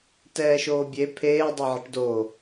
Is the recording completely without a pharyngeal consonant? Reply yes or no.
no